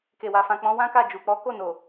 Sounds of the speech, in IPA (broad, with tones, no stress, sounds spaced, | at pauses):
k e˨ w a˨ f ã˨ k͡p ɔ̃˨˦ w ã˦ k a˦˨ d͡ʒ u˨ k͡p ɔ˨˦ k o˦˨ n o˨